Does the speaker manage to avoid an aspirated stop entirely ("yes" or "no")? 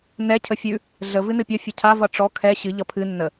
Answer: no